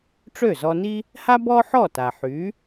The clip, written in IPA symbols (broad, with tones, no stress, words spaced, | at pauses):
ʈ͡ʂø˥˩zɔ˧ni˥ | ha˥ bɔ˥ħɔ˥˩ta˩ ħy˩˥